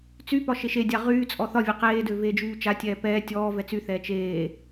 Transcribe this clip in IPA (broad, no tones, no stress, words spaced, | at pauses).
t͡sypɒ ʃeʃedʲa ʁyːt͡sʼɔ θɒvʲe qeːdø veːd͡ʒyːt͡ʃatʲɛː pɛː tʲɔː vɛt͡syθɛː t͡ʃeː